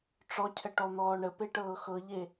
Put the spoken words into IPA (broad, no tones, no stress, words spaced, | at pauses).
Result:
ʈ͡ʂɔcʰə ʈɔn̪ɔːɳəpe ʈɤːxɤʎe